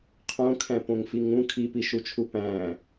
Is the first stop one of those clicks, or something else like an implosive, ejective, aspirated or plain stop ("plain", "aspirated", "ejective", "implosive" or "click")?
aspirated